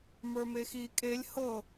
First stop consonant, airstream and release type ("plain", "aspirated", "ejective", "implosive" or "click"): ejective